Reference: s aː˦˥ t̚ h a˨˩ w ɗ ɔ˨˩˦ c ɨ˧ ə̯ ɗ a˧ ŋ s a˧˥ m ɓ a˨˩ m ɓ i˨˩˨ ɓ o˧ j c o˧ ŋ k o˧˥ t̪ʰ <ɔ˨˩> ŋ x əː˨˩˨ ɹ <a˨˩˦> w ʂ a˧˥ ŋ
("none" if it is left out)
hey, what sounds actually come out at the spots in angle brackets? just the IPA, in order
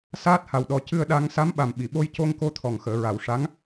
ɔ˨˩, a˨˩˨

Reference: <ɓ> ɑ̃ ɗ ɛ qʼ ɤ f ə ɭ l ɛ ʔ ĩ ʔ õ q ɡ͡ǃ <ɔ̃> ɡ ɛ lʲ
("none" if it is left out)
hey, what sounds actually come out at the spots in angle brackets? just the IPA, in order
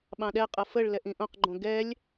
ɓ, õ

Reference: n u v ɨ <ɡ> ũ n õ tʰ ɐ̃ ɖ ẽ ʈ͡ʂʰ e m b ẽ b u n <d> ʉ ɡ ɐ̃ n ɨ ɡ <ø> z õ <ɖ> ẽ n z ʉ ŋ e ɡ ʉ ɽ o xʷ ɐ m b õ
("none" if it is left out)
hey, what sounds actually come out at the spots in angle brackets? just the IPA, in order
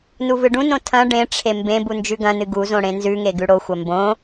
ɖ, d͡ʒ, u, ɽ

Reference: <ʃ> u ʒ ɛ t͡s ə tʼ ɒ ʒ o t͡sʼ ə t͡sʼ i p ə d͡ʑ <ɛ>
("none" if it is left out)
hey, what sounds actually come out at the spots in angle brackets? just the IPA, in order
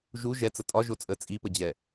ʒ, ɛ

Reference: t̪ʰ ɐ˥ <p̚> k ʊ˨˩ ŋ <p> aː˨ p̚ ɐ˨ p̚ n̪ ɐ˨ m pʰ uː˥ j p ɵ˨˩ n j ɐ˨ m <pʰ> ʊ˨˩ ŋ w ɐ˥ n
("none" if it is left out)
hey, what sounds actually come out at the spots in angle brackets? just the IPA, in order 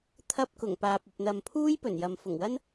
p̚, p, f

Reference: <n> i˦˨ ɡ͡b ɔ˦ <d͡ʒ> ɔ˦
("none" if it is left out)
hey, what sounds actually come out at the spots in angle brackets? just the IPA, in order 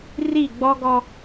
r, ɡ

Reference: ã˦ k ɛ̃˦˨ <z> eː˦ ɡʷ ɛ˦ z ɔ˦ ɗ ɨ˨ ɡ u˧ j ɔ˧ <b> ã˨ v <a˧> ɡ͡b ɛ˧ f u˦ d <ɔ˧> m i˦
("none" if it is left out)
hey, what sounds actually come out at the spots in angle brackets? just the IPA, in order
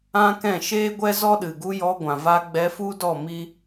ʃ, ɡʷ, a˧, ɔ˦˨

